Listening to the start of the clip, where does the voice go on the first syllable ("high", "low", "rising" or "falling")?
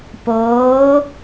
rising